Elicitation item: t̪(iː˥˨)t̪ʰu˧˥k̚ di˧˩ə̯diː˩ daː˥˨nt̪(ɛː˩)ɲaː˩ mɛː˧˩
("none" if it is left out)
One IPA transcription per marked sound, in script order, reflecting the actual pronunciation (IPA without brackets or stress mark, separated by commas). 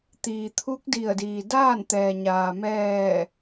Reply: iː˩, ɛː˩